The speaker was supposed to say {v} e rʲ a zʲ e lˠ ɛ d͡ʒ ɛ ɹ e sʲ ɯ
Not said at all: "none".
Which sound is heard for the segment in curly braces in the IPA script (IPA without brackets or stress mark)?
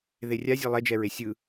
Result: ð